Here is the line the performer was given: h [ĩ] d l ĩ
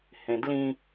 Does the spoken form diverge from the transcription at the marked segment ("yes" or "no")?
yes